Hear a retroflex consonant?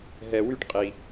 yes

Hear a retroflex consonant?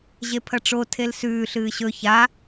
yes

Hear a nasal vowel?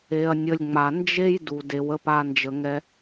no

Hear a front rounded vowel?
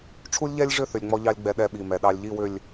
yes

